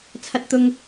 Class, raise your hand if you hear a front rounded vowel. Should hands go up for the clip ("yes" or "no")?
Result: no